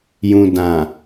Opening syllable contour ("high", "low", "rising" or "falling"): low